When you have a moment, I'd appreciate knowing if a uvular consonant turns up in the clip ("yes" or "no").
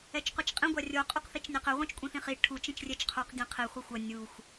yes